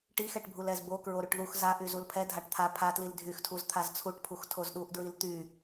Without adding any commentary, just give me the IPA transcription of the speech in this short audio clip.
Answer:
ʈ i x ɛ ʈ bʱ u l ɛ z b o k ɹ o ɾ y ʈ ð u x z a ʔ y z u l pʰ ɛ dʱ a ʈ t̪ʰ a pʰ a t l i l dʱ y x tʰ u z t̪ʰ a z t͡sʰ u ʈ pʰ u x tʰ o z ɗ u ʔ d ɹ i l t̪ y

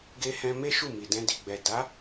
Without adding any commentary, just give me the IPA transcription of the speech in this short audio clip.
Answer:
ɡ e˧ h ɛ̃˧ m e˦ ʃ u˦˨ m i˨ d ɛ̃˧ d i˨ ɡ͡b ɛ˨ d a˨˦

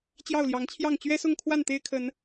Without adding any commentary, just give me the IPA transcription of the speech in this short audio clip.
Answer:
t͡ɕ j ɑ˥˨ ʊ̯ l j ɑ˨˦ ŋ t͡ɕʰ j ɑ˥˨ ŋ t͡ɕ ɥ ɛ˦ s ʊ˥˨ ŋ kʰ w a˥˨ n t̪ e˦ ɪ̯ kʰ ə˨˦ n

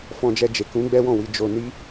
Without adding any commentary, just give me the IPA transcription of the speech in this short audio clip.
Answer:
f ɔ̃˧ d͡ʒ ɛ˧ d͡ʒ e˨ k ũ˨˦ ɡ͡b ɛ˦ w ɔ̃˦˨ w i˧ d͡ʒ o˧ n i˦

